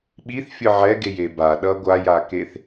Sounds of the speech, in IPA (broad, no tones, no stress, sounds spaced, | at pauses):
ɓ i θ fʲ ɯ ʕ ɛ ɡ e j e b a ɗ ʌ ɡʷ a j a k e θ